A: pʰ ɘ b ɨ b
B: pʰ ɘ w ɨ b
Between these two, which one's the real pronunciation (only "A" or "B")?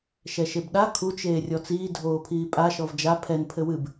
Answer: B